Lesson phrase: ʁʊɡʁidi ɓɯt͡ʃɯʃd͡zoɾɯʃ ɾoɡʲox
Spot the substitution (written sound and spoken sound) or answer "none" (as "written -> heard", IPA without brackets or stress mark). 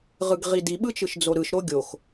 ʊ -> ɯ